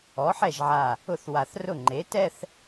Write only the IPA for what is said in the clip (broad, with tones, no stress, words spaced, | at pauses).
ɔ˩˥ħɛ˥˩ʒʕa˧˩ | ʊ˥˧θwa˧˩θrʊ˥˩ ŋ͡ǃe˩˥tɛ˥˧θ